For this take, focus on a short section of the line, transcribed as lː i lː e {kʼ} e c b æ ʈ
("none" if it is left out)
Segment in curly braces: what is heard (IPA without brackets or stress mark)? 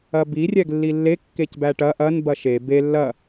kː